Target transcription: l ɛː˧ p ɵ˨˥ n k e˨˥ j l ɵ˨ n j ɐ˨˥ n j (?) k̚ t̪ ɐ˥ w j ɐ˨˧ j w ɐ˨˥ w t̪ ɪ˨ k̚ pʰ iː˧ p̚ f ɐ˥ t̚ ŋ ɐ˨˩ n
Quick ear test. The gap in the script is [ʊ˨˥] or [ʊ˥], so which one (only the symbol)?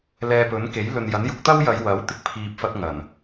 ʊ˨˥